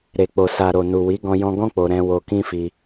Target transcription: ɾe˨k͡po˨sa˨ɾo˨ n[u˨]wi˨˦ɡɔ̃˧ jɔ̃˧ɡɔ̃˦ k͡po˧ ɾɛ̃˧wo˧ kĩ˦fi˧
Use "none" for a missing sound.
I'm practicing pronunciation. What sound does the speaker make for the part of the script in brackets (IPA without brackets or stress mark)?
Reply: u˨